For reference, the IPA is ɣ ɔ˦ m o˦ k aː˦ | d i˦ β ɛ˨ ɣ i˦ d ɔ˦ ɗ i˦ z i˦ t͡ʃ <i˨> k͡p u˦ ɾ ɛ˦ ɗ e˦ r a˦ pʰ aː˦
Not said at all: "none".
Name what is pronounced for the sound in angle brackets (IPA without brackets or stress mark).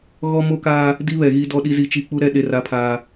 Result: i˦